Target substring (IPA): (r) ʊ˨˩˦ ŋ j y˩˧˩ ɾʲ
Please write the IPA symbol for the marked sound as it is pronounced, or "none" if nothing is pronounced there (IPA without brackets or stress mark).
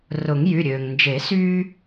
r